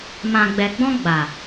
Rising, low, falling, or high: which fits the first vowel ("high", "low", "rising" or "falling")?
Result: low